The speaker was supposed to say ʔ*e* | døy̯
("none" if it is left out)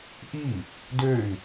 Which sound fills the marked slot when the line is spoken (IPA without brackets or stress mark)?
i